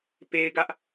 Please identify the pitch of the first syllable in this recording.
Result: high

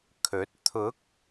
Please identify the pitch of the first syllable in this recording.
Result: rising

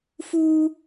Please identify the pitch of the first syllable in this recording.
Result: high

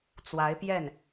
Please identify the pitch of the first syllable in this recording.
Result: rising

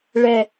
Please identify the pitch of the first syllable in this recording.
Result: low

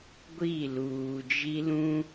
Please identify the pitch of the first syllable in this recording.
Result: falling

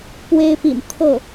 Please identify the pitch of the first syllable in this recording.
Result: high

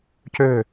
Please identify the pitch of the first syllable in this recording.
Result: falling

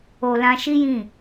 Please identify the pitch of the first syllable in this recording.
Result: low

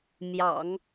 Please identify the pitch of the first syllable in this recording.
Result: low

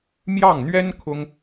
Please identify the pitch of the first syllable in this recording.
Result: falling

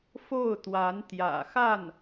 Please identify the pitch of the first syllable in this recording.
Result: falling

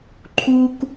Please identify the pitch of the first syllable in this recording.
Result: high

